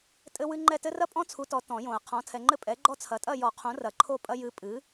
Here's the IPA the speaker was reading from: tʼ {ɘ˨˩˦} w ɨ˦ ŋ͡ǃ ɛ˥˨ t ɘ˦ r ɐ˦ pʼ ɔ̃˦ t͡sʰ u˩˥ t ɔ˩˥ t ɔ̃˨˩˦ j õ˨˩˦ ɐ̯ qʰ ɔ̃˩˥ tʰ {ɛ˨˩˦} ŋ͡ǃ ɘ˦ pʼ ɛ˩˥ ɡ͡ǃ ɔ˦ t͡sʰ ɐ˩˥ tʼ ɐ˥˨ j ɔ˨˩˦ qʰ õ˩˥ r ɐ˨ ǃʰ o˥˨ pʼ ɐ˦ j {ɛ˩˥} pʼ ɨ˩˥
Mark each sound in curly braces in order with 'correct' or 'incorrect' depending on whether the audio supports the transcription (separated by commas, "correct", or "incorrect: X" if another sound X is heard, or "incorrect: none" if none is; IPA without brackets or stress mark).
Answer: incorrect: ɘ˦, incorrect: ɛ˨, incorrect: ɨ˩˥